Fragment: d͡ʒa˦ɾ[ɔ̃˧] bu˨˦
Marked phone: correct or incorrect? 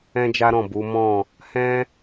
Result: incorrect